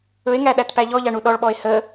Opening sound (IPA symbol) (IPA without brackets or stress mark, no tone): ɵ